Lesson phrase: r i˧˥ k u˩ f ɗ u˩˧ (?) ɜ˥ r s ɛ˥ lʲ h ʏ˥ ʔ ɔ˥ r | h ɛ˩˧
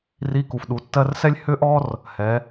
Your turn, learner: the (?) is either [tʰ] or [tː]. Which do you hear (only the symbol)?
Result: tː